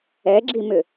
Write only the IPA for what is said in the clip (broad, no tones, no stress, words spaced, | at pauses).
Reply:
ɛɡ͡ǁimʏ